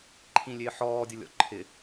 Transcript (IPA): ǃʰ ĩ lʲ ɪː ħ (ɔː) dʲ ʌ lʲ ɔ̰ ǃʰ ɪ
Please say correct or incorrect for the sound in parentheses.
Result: correct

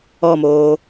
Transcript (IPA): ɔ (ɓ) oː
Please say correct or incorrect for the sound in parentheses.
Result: incorrect: m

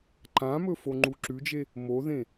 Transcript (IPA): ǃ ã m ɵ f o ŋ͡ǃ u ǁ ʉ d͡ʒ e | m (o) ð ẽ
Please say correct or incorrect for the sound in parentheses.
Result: correct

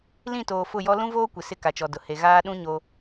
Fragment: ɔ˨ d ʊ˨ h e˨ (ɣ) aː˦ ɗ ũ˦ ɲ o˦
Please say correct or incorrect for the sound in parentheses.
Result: correct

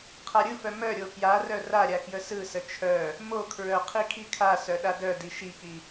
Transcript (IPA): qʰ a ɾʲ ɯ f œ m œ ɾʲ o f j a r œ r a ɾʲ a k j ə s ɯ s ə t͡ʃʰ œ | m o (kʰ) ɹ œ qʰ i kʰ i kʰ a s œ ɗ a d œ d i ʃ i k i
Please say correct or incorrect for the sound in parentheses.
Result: correct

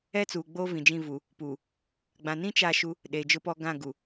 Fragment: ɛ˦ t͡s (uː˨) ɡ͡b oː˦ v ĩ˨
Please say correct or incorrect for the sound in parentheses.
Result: correct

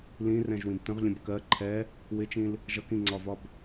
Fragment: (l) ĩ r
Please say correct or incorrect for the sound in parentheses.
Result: correct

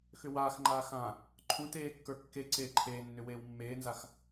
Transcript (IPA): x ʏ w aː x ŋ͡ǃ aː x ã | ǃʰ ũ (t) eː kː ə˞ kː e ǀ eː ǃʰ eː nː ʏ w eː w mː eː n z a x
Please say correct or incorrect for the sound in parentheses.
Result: correct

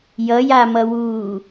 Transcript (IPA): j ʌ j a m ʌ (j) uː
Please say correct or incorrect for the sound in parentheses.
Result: incorrect: w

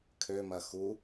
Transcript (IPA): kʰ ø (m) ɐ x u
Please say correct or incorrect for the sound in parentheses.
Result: correct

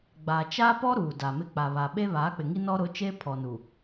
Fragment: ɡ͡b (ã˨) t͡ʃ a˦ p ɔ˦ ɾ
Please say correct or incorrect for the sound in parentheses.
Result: incorrect: a˨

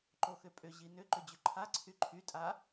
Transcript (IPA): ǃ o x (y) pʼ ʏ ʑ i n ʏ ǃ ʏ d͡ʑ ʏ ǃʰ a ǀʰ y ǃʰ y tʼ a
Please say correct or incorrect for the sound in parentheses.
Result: incorrect: ʏ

